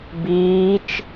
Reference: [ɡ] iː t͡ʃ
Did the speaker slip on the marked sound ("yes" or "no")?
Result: yes